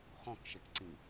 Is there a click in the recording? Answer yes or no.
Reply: yes